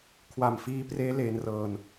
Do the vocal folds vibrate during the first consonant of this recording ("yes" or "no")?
no